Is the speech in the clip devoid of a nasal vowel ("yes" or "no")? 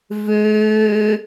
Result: yes